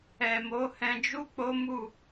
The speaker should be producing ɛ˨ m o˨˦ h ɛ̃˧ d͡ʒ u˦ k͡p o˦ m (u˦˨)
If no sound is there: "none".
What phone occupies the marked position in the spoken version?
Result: u˦˨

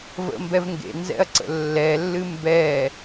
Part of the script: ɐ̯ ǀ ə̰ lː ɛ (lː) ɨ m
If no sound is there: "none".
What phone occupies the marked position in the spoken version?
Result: lː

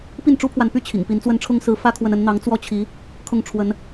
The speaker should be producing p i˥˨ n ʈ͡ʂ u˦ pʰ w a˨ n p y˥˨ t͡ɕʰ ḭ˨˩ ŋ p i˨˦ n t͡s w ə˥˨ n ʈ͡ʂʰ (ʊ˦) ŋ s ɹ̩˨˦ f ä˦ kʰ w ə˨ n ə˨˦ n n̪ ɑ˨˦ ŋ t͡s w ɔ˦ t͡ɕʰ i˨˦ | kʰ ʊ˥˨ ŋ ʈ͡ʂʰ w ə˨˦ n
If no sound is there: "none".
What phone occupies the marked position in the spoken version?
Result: ʊ˦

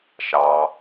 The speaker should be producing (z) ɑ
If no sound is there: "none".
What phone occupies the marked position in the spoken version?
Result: ʃ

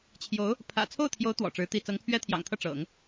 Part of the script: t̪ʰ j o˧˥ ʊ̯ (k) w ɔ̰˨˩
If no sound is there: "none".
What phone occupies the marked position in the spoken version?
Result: t̪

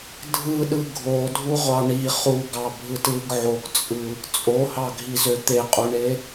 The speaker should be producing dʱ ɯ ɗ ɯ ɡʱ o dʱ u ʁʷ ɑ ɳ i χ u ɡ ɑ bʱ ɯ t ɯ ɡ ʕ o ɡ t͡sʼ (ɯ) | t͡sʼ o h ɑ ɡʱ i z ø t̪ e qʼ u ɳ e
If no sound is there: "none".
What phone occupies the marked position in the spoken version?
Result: ɯ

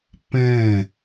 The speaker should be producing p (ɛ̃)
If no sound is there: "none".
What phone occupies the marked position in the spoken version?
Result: ɛ̃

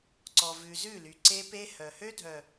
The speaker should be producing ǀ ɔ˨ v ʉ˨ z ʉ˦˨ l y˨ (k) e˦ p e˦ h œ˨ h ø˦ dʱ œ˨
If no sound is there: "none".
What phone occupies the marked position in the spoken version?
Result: ǀ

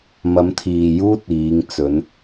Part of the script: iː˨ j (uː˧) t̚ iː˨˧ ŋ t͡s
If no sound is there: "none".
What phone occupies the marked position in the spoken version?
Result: uː˥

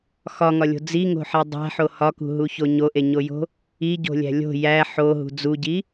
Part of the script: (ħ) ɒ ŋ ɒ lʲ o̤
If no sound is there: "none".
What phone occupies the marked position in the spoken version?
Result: x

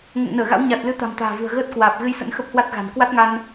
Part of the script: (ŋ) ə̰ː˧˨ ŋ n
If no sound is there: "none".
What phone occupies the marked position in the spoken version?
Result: ŋ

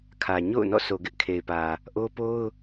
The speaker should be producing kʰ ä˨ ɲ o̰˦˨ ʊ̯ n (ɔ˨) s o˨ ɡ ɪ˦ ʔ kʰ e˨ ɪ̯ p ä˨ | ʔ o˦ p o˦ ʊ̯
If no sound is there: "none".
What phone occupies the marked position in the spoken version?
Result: ɔ̰˦˨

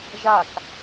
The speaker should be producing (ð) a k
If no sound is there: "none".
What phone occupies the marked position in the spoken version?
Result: ʒ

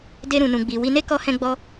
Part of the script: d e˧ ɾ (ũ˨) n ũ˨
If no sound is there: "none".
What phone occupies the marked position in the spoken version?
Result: ũ˨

